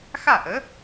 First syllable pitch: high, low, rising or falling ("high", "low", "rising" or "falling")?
falling